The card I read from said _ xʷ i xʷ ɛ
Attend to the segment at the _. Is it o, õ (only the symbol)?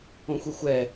õ